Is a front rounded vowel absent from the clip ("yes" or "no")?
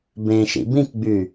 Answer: no